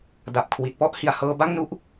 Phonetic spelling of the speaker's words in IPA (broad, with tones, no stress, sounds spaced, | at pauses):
d a˨˩ p̚ kʰ w i˨˩ t̚ p ɔ˥˩ ʔ h i˨˩ a̯ h ɤː˧ b a˥˩ ŋ n u˦˥ ʔ